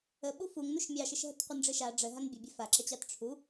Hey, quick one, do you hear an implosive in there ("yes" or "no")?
yes